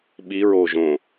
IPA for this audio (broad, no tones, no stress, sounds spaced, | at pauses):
ɓ i ɹ oː ʒ õ